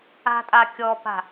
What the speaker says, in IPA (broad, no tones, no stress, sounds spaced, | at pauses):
a̤ tʼ a kʲ ɔ p a̤